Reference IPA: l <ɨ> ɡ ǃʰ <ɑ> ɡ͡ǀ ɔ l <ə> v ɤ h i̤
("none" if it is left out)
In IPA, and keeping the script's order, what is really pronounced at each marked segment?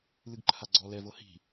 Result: ɨ, a, ɛ

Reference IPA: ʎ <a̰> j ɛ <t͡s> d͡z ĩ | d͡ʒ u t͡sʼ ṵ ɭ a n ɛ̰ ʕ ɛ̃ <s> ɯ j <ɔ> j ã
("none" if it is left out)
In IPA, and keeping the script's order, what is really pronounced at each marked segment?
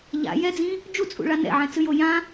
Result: a̰, none, t͡s, o

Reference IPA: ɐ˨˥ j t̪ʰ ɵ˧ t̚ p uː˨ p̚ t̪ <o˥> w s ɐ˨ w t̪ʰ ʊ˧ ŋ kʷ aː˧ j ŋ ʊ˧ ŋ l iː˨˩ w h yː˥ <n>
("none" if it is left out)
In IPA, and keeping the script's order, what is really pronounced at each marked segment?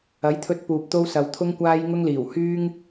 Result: o˧, ŋ

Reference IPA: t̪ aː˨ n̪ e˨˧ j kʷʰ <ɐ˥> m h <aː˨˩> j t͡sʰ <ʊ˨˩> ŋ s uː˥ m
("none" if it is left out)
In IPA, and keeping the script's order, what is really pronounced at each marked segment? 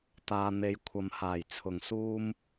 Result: ɐ˨, aː˨˩, ʊ˨˩

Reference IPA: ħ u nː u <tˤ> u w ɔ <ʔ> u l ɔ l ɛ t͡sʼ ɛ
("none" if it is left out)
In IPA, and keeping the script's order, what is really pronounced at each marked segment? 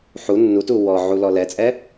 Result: t, ʕ

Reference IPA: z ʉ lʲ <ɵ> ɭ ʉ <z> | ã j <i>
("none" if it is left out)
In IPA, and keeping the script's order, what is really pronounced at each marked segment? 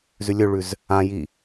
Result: ɵ, z, i

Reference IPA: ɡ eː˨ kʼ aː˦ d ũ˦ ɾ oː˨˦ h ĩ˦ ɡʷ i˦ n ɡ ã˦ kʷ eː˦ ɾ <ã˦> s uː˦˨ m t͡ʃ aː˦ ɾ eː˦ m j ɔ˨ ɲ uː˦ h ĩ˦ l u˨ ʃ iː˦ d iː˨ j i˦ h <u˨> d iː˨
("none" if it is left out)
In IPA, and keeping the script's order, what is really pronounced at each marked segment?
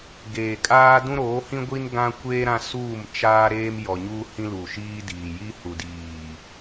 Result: ã˦, u˨

